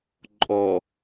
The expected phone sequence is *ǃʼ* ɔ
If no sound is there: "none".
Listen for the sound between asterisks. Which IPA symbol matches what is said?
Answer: ǃʼ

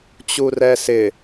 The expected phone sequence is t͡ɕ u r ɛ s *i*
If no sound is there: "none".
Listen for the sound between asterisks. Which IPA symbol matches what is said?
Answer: ɪ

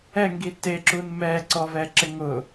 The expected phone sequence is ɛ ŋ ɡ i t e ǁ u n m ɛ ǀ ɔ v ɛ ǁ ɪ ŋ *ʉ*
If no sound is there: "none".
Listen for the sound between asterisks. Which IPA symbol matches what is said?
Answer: ʊ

